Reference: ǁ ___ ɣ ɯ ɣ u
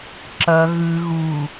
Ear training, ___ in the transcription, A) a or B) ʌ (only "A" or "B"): B